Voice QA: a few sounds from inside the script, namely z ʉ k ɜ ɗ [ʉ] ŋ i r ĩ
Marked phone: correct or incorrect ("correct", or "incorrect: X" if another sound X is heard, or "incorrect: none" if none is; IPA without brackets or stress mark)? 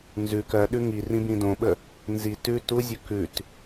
correct